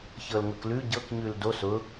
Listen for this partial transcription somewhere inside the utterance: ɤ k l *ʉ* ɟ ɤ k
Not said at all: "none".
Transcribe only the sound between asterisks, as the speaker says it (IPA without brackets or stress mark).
ʉ